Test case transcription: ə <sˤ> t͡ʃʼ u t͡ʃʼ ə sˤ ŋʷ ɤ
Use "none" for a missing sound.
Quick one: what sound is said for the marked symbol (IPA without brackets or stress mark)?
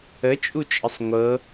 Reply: none